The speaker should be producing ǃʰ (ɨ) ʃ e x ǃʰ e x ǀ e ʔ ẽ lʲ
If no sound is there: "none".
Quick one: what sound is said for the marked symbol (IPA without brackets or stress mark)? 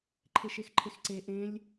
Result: e